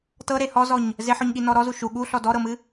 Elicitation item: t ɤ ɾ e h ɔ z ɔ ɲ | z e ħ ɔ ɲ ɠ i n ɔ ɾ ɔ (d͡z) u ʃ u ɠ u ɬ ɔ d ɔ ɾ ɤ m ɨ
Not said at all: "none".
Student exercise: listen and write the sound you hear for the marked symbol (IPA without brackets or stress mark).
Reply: z